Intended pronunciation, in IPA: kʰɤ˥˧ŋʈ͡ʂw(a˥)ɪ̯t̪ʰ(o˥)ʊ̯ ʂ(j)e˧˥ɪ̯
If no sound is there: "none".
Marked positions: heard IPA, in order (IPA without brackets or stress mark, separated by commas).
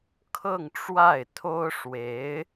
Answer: a˥˩, o˥, w